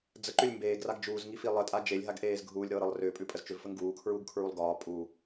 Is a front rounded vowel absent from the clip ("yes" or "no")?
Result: no